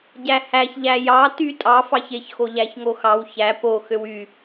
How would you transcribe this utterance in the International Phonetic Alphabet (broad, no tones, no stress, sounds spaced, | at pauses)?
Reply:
ɟ æ h æ ç ʎ æ j ɑ t y tʼ ɑ f ɑ ç e ç x o ʎ æ ç ŋ o x ɑ w ç æ p o x ø w y